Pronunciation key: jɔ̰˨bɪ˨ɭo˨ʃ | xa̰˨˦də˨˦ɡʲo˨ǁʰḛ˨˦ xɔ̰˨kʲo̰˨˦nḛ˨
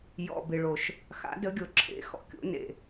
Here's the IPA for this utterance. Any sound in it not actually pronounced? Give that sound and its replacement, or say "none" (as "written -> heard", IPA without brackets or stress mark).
none